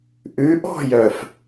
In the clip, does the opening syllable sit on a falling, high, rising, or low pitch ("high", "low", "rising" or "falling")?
rising